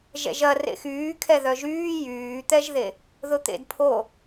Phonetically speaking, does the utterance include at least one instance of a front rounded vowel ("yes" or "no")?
yes